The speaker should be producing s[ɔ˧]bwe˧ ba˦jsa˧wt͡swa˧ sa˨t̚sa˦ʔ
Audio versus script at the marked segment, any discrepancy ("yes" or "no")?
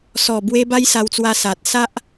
yes